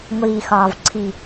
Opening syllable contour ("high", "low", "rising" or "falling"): low